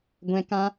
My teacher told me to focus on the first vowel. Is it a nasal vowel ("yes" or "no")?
yes